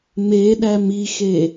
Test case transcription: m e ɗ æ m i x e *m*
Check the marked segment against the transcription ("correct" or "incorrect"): incorrect